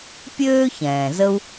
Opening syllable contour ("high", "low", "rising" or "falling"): high